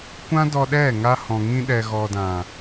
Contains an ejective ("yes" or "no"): no